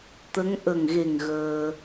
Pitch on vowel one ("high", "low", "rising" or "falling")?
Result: rising